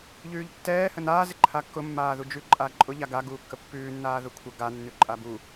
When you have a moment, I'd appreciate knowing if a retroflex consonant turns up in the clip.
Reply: no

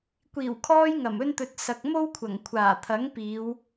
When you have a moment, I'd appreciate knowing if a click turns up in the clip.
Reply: no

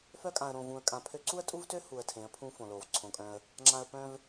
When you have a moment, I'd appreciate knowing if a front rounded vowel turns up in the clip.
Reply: yes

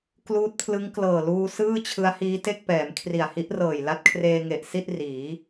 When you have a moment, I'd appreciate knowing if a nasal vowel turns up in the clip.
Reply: no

